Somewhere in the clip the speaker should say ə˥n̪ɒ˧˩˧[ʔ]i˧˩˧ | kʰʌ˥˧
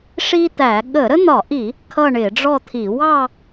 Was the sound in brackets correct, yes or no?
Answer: yes